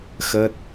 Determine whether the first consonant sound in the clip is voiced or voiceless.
voiceless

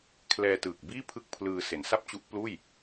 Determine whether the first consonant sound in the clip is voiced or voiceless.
voiceless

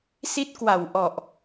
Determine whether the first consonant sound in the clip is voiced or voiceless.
voiceless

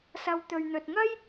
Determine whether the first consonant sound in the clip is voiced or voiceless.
voiceless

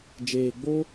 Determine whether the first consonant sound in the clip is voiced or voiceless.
voiced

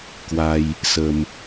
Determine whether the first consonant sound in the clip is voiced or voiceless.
voiceless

